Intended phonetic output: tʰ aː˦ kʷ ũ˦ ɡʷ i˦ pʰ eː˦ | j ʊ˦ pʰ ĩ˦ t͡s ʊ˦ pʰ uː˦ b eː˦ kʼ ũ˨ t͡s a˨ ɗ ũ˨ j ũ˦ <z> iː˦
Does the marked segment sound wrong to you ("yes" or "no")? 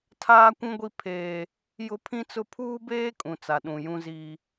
no